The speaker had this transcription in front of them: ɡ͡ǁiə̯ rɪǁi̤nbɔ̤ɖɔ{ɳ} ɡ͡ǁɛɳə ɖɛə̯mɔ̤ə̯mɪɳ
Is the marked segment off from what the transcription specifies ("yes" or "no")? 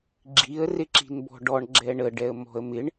no